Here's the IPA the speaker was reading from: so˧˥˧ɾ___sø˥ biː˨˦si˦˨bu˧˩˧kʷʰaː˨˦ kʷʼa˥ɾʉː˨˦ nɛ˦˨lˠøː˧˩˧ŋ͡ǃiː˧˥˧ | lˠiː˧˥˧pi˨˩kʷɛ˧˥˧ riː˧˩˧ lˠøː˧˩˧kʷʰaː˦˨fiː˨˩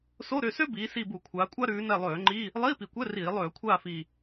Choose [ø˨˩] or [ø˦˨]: ø˦˨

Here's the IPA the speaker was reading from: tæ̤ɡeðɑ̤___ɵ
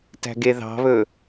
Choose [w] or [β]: β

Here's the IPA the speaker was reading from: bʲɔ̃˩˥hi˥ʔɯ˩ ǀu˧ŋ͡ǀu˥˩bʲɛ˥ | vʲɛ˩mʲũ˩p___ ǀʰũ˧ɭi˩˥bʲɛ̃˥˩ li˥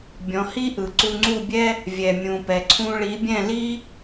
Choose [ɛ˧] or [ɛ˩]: ɛ˩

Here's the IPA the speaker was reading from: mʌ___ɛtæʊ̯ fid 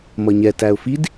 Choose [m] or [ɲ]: ɲ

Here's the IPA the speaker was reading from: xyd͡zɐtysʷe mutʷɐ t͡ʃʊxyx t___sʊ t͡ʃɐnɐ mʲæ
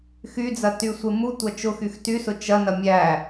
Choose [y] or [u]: y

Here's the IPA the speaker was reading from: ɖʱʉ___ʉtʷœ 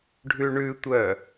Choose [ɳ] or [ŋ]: ɳ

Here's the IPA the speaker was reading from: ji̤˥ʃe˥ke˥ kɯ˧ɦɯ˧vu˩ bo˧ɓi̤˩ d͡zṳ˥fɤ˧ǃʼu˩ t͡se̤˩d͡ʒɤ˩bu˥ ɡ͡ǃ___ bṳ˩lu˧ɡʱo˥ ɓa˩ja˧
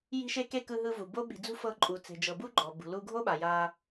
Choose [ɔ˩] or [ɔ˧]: ɔ˩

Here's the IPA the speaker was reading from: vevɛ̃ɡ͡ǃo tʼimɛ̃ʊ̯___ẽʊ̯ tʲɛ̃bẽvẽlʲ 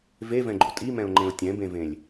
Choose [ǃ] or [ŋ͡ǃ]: ŋ͡ǃ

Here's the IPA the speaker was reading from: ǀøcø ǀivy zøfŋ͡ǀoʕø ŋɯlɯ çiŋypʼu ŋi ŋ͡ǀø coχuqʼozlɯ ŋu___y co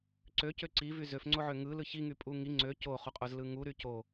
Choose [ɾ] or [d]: ɾ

